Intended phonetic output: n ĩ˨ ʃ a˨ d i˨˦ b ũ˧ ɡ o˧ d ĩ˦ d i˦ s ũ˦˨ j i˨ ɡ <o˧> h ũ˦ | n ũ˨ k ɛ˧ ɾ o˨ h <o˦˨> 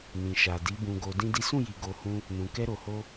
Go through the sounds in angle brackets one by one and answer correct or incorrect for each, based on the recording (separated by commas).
correct, incorrect